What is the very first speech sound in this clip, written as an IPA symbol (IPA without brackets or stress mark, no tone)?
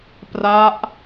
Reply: p